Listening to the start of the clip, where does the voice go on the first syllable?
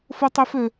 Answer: high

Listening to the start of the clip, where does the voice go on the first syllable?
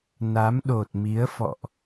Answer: rising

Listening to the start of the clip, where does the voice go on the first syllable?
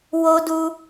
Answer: high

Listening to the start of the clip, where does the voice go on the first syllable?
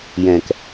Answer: low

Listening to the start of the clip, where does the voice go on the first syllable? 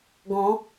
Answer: rising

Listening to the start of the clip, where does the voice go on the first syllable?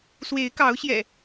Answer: rising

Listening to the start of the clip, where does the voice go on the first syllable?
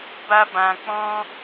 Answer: high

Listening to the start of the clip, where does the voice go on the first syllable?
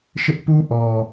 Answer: high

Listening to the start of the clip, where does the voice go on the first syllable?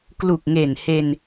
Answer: low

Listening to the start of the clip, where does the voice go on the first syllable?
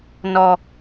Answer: low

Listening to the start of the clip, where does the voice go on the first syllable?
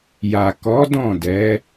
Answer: low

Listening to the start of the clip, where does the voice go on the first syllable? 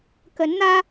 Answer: rising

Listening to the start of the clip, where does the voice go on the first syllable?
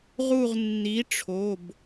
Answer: falling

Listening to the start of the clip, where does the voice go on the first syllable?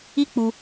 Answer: high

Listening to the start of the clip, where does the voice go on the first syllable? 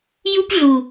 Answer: high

